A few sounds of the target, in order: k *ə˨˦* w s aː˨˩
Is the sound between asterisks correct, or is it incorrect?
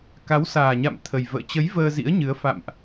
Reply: incorrect